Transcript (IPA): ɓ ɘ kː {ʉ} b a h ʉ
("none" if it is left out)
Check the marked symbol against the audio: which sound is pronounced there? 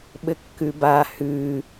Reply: ʉ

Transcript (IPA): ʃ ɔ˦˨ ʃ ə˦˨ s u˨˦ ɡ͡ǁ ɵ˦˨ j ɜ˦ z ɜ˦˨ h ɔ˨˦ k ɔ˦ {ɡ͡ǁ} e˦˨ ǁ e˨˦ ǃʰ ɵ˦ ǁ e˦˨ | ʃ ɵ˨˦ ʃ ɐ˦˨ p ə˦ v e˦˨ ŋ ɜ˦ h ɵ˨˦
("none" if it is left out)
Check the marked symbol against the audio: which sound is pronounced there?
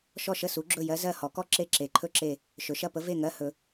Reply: ǁ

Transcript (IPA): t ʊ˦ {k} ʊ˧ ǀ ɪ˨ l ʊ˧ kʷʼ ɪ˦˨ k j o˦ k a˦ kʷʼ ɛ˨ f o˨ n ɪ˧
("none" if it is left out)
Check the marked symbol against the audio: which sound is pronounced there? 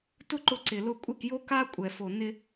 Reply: ǃ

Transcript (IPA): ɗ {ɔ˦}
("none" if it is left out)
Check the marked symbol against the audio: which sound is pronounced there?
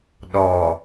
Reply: ɔ˨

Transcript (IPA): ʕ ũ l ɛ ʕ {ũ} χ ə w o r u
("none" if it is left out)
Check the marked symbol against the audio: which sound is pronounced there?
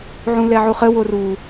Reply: u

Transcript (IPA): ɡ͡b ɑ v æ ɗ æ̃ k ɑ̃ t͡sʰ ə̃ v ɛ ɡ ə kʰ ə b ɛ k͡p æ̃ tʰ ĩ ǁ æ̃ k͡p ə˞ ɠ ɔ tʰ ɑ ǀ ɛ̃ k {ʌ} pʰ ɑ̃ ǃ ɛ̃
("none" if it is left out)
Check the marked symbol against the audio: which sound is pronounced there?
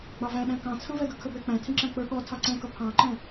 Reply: ʌ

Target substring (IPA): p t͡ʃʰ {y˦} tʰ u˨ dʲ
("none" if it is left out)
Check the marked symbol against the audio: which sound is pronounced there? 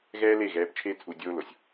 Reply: e˦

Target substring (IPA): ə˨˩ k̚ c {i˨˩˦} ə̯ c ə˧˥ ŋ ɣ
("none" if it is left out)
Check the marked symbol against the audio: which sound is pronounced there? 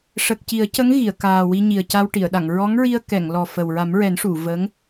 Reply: i˨˩˦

